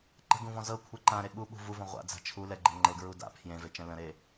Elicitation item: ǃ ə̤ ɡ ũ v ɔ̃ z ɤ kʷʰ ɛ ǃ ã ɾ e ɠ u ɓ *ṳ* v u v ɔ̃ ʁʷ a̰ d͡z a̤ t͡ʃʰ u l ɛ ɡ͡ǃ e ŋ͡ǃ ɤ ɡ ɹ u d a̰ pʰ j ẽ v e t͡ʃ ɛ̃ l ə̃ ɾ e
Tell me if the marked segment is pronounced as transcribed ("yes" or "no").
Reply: yes